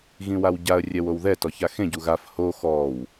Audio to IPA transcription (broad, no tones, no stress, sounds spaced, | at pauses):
ɣ ĩ w a w ɟ a ə̯ rʲ ɛ w o w ð ɛ t ɔ ç a x ẽ ɟ u ɣ a f h o x ɔ w